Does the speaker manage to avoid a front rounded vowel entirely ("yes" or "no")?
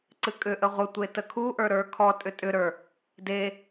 no